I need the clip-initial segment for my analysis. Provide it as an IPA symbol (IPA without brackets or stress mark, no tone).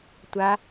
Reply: tʷ